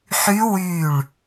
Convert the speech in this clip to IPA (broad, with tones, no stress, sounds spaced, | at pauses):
ħ y˦˥ w y˧˩ ɭ